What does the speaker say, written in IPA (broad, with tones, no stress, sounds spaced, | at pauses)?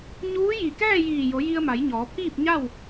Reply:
ɲ uː˧˥ j i˧˩ k ɛː˥˨ j iː˧˩ j o˩˧ j i˧ ə̯ m a˩˧ j ɲ ɔː˩˧ pʰ iː˥˨ p̚ ɲ a˥˨ w